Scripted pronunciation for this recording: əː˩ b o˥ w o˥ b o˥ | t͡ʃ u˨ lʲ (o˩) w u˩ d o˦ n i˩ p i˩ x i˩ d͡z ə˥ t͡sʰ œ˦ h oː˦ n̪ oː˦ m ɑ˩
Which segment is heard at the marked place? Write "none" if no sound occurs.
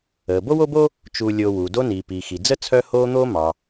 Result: o˨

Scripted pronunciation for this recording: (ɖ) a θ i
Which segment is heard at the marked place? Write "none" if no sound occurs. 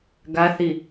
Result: ɡ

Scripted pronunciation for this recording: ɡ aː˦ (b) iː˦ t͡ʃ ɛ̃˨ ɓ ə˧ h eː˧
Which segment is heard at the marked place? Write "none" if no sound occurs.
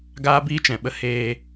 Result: b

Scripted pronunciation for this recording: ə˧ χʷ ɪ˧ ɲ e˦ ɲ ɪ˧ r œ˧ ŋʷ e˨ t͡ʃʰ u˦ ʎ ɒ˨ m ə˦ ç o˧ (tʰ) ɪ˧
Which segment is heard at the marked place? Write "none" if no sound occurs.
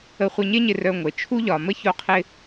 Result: qʰ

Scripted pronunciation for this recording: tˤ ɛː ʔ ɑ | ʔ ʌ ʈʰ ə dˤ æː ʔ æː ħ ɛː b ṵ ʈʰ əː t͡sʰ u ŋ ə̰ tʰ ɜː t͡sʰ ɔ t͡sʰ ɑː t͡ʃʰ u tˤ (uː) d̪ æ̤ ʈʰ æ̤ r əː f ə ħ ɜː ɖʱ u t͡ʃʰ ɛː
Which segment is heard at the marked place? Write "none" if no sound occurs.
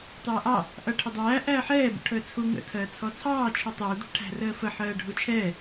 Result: uː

